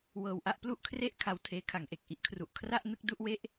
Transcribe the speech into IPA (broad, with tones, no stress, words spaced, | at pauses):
wɤː˧wʔa˥˩ʔ plu˥˩ʔkʰre˥˩ʔ kʰa˧wtʰeː˦˥kʰa˩˦ŋʔe˨˩k̚ ʔi˦˥ʔkʰru˨˩ʔ kʰra˥˩ʔ nɯ˥˩k̚ du˥˩ʔwe˥˩ʔ